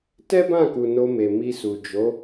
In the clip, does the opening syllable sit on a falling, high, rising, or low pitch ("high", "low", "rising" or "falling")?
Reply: high